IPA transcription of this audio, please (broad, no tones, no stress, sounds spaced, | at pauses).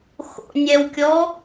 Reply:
x o̰ nʲ ɛ w kʲ ɔ